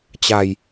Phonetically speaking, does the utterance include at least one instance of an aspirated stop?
no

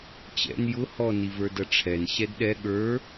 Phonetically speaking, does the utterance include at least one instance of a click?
no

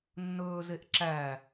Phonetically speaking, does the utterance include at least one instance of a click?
yes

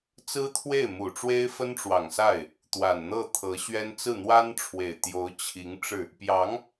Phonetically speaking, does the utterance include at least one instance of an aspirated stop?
yes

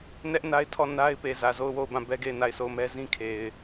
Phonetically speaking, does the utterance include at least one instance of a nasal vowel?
yes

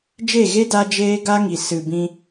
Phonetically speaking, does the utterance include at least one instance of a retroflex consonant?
no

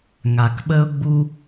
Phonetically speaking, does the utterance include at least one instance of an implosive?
yes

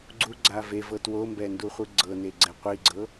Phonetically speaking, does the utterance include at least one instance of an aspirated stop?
no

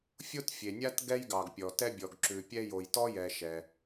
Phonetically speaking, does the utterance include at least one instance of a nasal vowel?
no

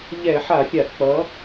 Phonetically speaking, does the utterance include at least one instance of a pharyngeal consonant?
yes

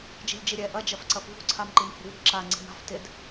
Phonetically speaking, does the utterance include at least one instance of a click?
yes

